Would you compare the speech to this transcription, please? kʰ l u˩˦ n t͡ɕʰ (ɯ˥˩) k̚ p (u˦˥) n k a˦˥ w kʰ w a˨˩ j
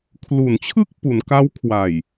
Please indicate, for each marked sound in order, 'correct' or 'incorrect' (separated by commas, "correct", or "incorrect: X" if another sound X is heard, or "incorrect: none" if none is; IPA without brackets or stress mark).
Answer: correct, incorrect: u˩˦